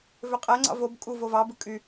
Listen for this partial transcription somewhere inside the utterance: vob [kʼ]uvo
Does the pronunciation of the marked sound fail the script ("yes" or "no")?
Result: no